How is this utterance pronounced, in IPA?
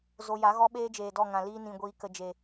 z o˧ j a˨˦ ɣ ɔ˦ ɓ eː˦ d͡ʒ eː˨ d ɔ˦˨ ŋ ã˨ l iː˧ n ĩ˨ ɡʷ iː˨ k ə˨ d͡ʒ e˨

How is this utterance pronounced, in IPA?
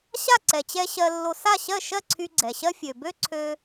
ɕ a˥˩ ǀ ɛ˩ t͡ɕ ɛ˧ ɕ ɜ˧ lː o˧ s a˥˩ ɕ ɜ˥˩ ʃ ɜ˥˩ ǀʰ y˧ ɡ͡ǀ ɛ˩ ɕ ɜ˥ fʲ ø˩ b ø˥ ǀʰ ø˧

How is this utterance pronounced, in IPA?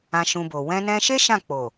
ã˧ ʃ ũ˧ b o˨ w ɛ̃˧ n ɛ̃˧ ʃ e˦ ʃ ã˦˨ k͡p o˨

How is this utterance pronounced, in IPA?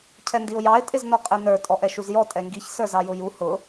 cʰ ɛ n d i ʊ̯ j ɑ ɪ̯ tʼ ɪ z n ɔ qʼ ɛ n ə˞ tʼ ɔ ʔ ɛ ʃ u z j ɔ tʼ ɛ ŋ ɡ i ç s ə˞ z ɑ j ʊ j u h ʊ

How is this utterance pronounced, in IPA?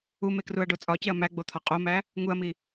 u m e k r u ɐ̯ ɖ o t͡sʼ ɒ c e ɐ̯ m æ ɡ͡b o t̪ʰ ɒ qʼ o m æ | ŋ u ɐ̯ m i

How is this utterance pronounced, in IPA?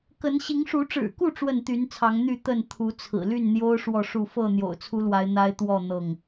k ə˨˦ n ɕ i˨˦ ŋ ʂ u˨˦ ʈ͡ʂ ɻ̩˨˩ k u˥˨ ʈ͡ʂ w ə˥˨ n t̪ y˨˦ n t͡sʰ ɑ˨˦ ŋ n̪ y˥˨ t̪ ə˥˨ n t̪ʰ u˨˦ t͡sʰ ɹ̩˨˩ l y˥˨ n n̪ j o˦ ʊ̯ ʂ w ɔ˥˨ ʂ u˥˨ f ɤ˥˨ n̪ j o̰˨˩ ʊ̯ t͡sʰ u˦ l w a˨˦ ɪ̯ n̪ a˦ ɪ̯ t̪ w ɔ˥˨ n̪ ɤ˥˨ ŋ

